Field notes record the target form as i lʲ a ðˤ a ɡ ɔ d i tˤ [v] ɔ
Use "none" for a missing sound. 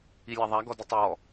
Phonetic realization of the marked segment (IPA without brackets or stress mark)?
w